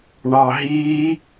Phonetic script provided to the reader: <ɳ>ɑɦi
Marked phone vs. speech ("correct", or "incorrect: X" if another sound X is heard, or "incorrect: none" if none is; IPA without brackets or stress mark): correct